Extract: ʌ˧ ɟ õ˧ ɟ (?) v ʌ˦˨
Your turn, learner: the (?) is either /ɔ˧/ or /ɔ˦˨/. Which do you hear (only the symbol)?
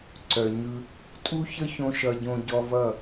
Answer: ɔ˧